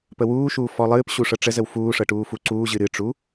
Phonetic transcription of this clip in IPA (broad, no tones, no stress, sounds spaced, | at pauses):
p ə w uː ʃ uː f ɔ lˠ ɨː p ɕ u ʂ ɤ ʈ͡ʂ ə z ə w f uː ʂ ɤ ʈ uː f u ǀ uː ʑ ɨ ɾ ɨ ʈ͡ʂ u